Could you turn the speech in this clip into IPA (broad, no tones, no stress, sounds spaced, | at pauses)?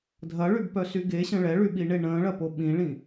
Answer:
dʱ ɐ ɭ y b p œ s y ɡ e ɕ ə̃ ɭ ɛ ɭ y ɓ i ɳ e ɳ ə̃ː ɭ ɐ p o ɓ ĩ ɭ ĩ